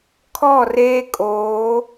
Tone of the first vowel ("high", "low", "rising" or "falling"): falling